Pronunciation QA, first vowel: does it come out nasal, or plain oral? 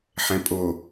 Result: nasal